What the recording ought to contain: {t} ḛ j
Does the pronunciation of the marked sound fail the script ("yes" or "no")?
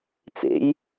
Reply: yes